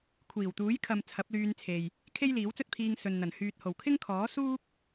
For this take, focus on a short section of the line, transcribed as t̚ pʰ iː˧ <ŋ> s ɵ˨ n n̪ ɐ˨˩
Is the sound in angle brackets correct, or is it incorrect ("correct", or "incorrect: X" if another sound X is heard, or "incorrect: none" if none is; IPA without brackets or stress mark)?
correct